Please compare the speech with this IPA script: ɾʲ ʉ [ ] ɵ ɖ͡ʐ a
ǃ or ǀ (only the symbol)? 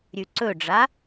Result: ǀ